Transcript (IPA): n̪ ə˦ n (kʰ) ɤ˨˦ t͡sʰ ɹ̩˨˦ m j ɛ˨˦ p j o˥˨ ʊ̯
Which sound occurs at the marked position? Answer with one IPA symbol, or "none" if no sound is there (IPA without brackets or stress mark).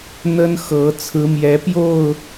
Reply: x